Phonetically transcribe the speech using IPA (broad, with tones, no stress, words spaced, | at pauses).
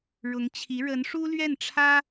ɻʊ˧˥ŋt͡ɕʰi˧˥ ɻə˧˥nʂu˥lɥɛ˥˩nʈ͡ʂʰä˥